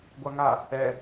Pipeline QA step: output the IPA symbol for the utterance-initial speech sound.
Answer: ɡʷ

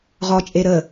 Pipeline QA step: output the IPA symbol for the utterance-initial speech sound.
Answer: ʁ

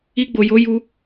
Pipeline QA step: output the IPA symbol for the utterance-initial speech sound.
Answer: i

